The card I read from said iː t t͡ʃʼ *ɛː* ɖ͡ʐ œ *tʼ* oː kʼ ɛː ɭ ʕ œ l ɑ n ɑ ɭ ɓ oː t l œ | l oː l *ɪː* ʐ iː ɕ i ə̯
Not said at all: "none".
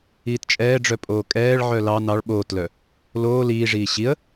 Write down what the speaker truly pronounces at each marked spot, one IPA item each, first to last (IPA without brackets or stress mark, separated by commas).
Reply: ɛː, pʼ, iː